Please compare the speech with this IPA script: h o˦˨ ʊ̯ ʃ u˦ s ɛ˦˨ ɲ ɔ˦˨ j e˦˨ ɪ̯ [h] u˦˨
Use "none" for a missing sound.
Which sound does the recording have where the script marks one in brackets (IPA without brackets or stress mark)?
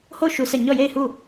h